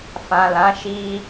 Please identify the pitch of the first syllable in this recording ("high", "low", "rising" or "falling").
low